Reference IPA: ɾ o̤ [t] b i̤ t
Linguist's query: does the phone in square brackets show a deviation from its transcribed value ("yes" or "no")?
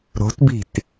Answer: no